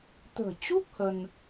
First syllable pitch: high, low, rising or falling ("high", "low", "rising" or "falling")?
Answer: low